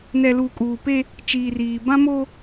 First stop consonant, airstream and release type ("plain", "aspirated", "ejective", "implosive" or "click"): ejective